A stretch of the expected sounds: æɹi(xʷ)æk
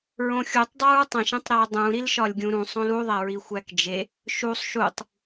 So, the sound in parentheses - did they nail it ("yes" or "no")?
yes